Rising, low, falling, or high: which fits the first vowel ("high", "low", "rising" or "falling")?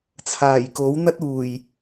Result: low